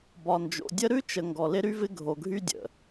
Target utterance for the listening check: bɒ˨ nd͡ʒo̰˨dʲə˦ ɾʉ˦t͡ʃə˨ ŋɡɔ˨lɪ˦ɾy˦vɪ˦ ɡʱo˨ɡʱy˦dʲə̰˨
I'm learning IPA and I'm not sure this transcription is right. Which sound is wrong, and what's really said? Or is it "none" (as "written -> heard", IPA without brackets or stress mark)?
none